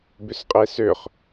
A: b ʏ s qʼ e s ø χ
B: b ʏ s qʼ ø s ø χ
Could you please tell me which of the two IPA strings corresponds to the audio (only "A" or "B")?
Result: A